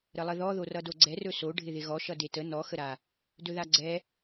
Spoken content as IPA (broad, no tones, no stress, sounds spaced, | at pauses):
ɾ ə lˠ ə ð ɔ ð o r ʌ d o ɡ͡ǀ ɛ r ɵ s o ɖʱ ɪ ð ɪ ɣ ɔ ʃ ʌ d e t ə n ɔ x ə ɾ a | d ɵ ð a ɡ͡ǀ ɛ